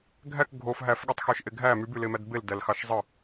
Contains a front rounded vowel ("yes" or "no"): yes